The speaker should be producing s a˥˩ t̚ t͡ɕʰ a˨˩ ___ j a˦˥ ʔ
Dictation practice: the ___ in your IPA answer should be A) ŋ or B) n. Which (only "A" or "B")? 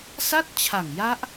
A